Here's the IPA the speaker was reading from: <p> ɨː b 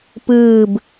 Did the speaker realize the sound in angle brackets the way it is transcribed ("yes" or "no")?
yes